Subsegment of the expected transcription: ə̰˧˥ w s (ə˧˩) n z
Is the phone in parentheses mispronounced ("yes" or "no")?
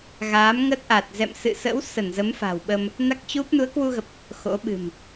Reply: no